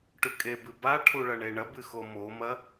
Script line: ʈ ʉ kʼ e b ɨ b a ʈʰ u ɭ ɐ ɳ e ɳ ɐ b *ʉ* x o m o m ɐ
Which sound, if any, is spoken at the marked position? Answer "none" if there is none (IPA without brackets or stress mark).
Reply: ɨ